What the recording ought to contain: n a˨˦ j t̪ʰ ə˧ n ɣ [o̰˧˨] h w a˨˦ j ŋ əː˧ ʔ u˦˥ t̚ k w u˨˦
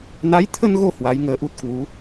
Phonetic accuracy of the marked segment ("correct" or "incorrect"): incorrect